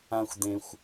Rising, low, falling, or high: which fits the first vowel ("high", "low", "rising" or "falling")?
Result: low